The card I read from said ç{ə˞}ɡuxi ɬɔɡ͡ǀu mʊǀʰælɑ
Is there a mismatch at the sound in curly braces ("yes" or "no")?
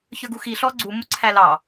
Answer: no